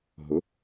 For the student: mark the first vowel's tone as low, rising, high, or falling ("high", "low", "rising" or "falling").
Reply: rising